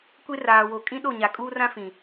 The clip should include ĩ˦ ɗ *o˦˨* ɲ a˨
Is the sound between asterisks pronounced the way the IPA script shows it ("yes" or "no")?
yes